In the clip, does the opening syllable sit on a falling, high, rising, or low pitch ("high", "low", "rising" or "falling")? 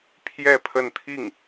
falling